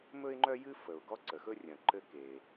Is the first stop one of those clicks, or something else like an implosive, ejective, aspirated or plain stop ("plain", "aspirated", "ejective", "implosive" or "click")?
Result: click